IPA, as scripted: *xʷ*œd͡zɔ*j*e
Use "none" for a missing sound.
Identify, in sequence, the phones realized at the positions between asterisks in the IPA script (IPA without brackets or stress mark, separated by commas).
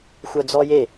xʷ, j